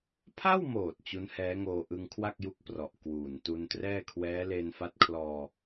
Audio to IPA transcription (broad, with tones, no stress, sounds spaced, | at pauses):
pʰ a˥˩ w m oː˨˩ t̚ t͡ɕ u˦˥ n h ɛː˦˥ ŋ oː˧ ʔ ɯ˧ ŋ kʰ w a˥˩ k̚ j u˦˥ k̚ p r ɔ˨˩ ʔ k w uː˨˩ n t u˧ n t r ɛː˥˩ kʰ w ɛː˦˥ l e˧ n f a˦˥ t̚ kʰ l ɔː˧